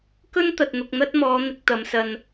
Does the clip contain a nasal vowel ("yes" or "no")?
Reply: no